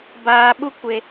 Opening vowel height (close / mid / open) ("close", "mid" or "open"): open